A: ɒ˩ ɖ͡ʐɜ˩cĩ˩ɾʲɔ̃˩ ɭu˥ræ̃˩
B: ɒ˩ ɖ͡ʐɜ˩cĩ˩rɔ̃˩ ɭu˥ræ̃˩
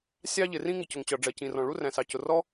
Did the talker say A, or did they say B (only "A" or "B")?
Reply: B